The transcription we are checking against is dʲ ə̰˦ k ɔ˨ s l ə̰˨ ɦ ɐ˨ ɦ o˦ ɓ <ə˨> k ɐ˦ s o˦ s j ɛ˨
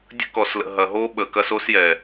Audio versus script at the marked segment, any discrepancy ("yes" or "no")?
no